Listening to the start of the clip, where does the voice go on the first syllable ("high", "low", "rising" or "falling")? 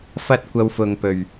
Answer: high